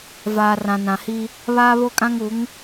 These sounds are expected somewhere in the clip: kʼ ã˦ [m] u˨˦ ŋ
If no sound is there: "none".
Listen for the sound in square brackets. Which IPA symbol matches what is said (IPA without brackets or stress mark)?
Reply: ŋ